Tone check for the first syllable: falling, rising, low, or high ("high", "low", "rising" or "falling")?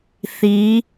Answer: rising